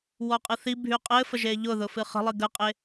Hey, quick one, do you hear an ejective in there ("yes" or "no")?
yes